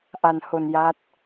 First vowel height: low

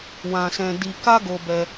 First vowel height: low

